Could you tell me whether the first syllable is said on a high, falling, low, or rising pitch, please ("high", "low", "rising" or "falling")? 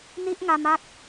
high